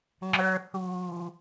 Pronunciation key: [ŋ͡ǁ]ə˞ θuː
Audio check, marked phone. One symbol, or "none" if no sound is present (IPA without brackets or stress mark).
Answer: ŋ͡ǁ